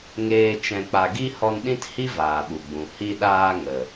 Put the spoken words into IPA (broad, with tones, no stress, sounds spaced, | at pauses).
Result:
ŋ eː˧ t͡ʃ ɛ̃˨ k͡p a˨ ɡ i˧ h ɔ˧ n ɗ ĩ˦ t h i˦ v aː˨ ɓ u˨ ɡ͡b ũ˨ h i˧ ɗ aː˧ ŋ ə˨